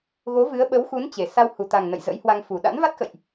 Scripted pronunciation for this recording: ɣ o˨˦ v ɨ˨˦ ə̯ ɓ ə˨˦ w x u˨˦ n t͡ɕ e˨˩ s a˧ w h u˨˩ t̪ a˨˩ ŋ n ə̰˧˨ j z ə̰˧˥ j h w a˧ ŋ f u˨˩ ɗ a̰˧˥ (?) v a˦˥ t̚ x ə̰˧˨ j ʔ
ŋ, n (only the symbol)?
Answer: n